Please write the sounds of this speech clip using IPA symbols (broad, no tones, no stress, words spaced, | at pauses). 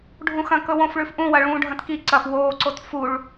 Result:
ɖʱũxɐ̃ kɵwõfɭʉf ʔũwɐɭũːɖʱɐ̃t ki ǀɐf woːǀot fuɭ